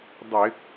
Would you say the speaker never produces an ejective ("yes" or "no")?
yes